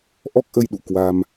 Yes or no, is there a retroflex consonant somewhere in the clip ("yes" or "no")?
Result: no